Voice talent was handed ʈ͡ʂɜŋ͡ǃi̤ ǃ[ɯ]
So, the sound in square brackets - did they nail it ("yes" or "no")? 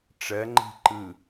yes